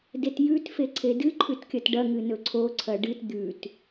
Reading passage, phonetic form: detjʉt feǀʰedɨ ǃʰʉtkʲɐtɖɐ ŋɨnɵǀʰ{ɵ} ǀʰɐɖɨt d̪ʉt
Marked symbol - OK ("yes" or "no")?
no